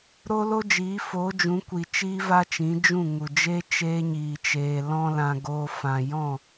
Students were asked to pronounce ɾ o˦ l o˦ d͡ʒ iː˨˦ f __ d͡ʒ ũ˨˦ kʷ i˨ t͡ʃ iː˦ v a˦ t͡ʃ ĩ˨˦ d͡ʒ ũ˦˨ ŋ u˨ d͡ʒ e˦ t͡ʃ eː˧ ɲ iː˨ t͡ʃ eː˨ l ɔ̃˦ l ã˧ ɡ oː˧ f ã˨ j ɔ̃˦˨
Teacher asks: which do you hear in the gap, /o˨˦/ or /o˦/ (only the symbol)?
o˨˦